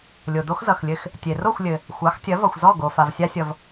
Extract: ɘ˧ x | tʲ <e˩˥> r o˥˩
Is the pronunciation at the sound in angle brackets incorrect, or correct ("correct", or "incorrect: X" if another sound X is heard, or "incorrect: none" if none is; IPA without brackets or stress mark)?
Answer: incorrect: e˩